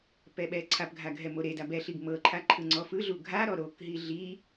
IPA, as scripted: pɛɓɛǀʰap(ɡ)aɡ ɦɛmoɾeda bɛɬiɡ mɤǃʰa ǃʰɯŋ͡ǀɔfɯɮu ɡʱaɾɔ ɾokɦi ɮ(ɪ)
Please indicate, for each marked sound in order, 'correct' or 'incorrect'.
incorrect: ɡʱ, incorrect: i

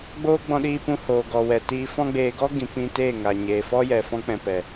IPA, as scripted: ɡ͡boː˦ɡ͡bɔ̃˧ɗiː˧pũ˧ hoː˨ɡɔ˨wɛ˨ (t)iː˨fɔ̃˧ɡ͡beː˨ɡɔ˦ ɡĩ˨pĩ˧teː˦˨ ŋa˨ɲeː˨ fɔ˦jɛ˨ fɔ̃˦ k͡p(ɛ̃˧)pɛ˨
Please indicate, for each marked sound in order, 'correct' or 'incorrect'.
correct, correct

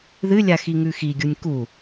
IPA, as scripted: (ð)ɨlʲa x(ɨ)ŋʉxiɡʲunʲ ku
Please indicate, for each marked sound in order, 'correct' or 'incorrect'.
correct, incorrect: i

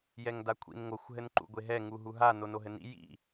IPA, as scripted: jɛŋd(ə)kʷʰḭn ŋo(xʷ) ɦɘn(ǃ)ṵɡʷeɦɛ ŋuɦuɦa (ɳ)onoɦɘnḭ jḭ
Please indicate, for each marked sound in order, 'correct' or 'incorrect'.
incorrect: a, correct, correct, incorrect: n

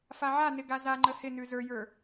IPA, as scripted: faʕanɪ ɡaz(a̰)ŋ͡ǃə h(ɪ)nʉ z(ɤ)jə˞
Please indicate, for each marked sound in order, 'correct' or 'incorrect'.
incorrect: a, correct, incorrect: ə˞

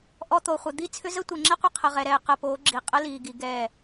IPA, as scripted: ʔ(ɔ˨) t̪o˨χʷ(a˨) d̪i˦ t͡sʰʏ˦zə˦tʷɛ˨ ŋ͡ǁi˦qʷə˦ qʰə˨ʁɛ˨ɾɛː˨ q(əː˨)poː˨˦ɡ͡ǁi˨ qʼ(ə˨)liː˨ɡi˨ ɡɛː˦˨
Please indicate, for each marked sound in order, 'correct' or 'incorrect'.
correct, incorrect: ə˨, correct, incorrect: ə˦

